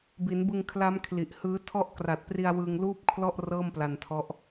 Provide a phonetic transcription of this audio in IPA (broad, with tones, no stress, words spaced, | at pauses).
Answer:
bi˩˦nbɯ˧ŋkʰla˦˥m kʰli˨˩ʔhɯː˦˥ tʰɔ˦˥ʔkra˨˩t̚pri˧a̯ wɯ˧ŋ luː˥˩p̚kʰlɔ˥˩ʔ rɤː˥˩mpla˧ntʰɔ˦˥ʔ